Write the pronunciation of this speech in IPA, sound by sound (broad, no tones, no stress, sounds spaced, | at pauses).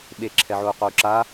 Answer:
ɓ e ǁʰ ɛ ʕ o u̯ q o u̯ ǁ a